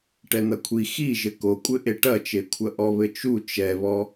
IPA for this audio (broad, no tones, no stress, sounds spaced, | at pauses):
ʈ ɛ n̪ ɐ kʷʰ i x i ʒ ɘ k o kʷʼ ɘ ʔ e ʈ ɐ t͡ʃ e kʷʰ ɐ ʔ ɔ β ɘ t͡ʃ u t͡ʃ ɛ β ɔ